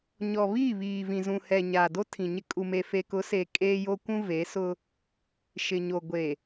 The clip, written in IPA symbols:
ɲɔ˨βiː˦˨ βiː˨vĩ˨ zũ˨hɛ˨ ɲaː˨do˦tʰĩ˨ɲɪ˦ kʼu˨me˨fe˨kʊ˨˦ se˨ kʼeː˦jo˦kʷũ˦ ve˨˦sʊ˦ | ʃɪ˨ɲo˨ ɡʷe˨

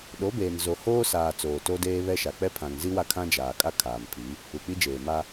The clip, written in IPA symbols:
ɗo˨˦beː˨n zo˨ hoː˦saː˨ t͡soː˨to˦deː˦ βɛ˦ʃa˨ k͡pɛ˦pʰã˨ŋzi˦wa˦ kʰã˦d͡ʒaː˨kʼa˦ kʰaː˨mpʰi˨˦ | u˨k͡pi˦d͡ʒeː˨ ma˦

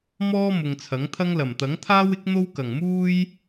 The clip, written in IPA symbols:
mɔː˥mʊ˨ŋ t͡sʰɐ˨˥ŋt̪ʰɐ˥ŋ lɐ˨˩mt̪ɐ˨˥ŋt̪ʰaː˥wɪ˥k̚ n̪o˥wkɐ˨˩ŋmuː˥j

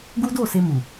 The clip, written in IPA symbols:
ɡu˦do˦˨se˧ mu˨

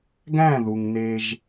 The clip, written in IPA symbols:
ɡæ̃˦˨ ðu˨ŋne˦ʒ

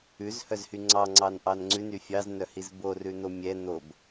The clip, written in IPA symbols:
ʉzhœzhy ŋ͡ǀɑŋ͡ǀɑnʔɑn ŋ͡ǀʉny fʲɑznœhiz borʉn̪o mʲɛ n̪ob

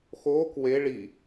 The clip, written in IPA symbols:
xoːk we ɭi

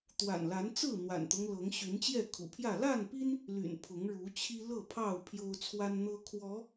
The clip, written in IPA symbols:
t̪wa̰˨˩nla˨˦nt͡sɹ̩˥˨ n̪wa̰˨˩nt̪ɤ˦ŋlɤ˨˦ŋ ɕy˨˦nt͡ɕjɛ˥˨kʰṵ˨˩pʰjä˥˨ la˥˨npi˦n | ly̰˨˩n pʰʊ˨˦ŋɻu˨˦ t͡ɕʰi˦lɤ˥˨pʰɑ˥˨ʊ̯ pʰjo˦ʊ̯t͡sʰwa˦nn̪ɤ˦ kʰwɔ˨˦

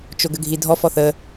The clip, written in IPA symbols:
t͡ʃoɡəɡʱidʱɔ fɔθə

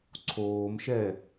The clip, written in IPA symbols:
ǀʰoːmʃɛ

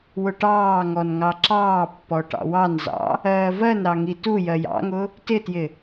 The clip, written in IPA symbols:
wʊʈɑːŋɔn ŋɑǁɑːpːɔ ʈɑ̰wɑnzɑ̰ | ɜːvɜnɾɑ ŋitujɜj ɑ̰ŋʊ | tɪtjɪ

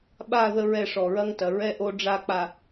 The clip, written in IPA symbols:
ɓa˦˨ ðə˦ɹɛ˦˨ ʂɔ˨ɹɐ˦ŋtɐ˨ ɹɛ˦ ʔo˦ɖ͡ʐa˦˨k͡pa˨

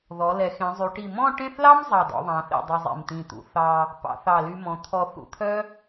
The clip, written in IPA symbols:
ðɔ˩˧ lɛ˩˧xẽ˩˧zˤy˩˧ʈi˧˩ mɔ̃˥˧ʈẽ˥˧θlɑ˥m zˤɑ˧˩dɔ̰˧ðˤɑ̃˩˧θḭ˧˩ dˤi˧zˤḭ˧˩mt̪ĩ˧˩t̪ṵ˩˧ θɑ˧ | pɑ̰˩˧θɑ˧˩ly˧mɔ̃˩˧ t̪ʰɔ˧ θṵ˧t̪ʰœ˥

